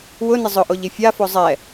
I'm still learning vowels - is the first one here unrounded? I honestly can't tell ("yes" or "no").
no